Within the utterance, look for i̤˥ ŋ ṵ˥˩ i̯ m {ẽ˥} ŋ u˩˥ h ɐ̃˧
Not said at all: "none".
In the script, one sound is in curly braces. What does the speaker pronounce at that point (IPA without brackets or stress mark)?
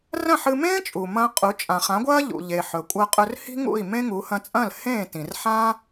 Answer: ẽ˥